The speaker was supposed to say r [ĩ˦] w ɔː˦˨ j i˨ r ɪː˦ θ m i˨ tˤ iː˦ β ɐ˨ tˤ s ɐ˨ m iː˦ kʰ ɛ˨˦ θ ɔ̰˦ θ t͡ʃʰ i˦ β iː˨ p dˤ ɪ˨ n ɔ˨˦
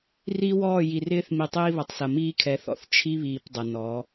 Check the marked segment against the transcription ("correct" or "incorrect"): incorrect